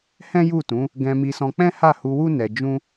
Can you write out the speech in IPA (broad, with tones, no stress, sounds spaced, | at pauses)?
h ɛ̃˦ j u˦˨ t ũ˨˦ | ɡ ɛ̃˧ m i˧ s ɔ̃˧ k͡p ɛ̃˦ h a˦˨ h u˧ w u˦ n ɛ˧ d͡ʒ ũ˦